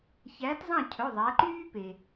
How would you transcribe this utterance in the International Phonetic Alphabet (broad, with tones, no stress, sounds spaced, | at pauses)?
ç æː˨˥ t zˤ ɑ̃˥˨ cʰ ɵ˩˧˩ ðˤ æ˩˧ ǃ yː˦ p e˩